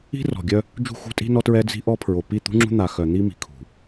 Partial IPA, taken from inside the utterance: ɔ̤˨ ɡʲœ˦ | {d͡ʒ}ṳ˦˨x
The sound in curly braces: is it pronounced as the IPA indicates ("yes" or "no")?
yes